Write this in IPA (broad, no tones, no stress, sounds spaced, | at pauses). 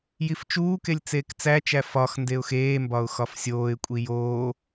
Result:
j i f t͡ʃ uː k e lʲ t͡s eː k t͡s æ t͡ʃ æ f ɒ x n d e ʊ̯ x eː m b ɒ ʊ̯ x ɒ f sʲ oː ɪ̯ kʷʼ i j oː